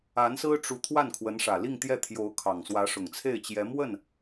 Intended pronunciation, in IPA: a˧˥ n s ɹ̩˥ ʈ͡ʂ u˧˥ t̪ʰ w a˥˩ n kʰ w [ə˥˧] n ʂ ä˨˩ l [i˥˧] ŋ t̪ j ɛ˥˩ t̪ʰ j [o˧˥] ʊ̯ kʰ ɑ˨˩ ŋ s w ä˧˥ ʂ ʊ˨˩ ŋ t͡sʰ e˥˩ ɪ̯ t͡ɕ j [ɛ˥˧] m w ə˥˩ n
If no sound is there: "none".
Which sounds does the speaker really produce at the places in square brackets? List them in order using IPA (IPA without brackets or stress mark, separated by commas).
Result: ə˧˥, i˥˧, o˧˥, ɛ˧˥